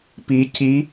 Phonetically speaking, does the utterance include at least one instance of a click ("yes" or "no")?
no